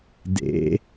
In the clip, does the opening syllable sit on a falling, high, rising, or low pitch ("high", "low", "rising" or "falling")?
rising